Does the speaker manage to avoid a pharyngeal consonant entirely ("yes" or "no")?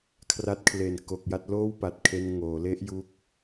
yes